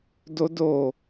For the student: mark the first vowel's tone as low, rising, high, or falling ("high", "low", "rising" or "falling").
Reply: high